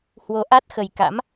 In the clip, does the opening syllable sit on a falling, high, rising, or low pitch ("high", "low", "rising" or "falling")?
rising